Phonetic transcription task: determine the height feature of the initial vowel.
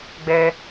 mid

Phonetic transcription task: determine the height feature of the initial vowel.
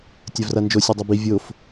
low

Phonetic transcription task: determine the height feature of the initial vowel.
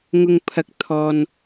high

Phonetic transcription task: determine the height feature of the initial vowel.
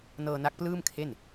mid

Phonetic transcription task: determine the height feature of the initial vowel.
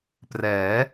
mid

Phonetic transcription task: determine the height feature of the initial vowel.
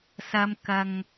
low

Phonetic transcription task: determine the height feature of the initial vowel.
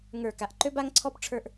mid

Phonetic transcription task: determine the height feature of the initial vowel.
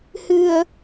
high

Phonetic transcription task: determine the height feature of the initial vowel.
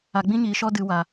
low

